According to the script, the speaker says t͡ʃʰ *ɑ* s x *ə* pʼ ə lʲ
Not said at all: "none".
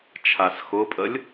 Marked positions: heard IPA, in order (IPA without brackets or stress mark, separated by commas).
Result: a, ʊ